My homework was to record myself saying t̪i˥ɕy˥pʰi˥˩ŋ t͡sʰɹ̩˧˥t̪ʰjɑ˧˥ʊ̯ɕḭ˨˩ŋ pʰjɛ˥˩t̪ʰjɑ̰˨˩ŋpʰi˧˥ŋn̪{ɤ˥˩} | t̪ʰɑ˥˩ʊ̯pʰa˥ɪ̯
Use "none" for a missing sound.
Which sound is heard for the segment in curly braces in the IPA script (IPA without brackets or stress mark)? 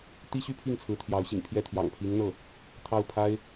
ɤ˥˩